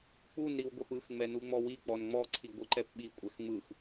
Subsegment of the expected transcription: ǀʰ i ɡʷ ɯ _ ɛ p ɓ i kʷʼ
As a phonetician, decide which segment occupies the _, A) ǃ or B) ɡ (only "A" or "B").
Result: A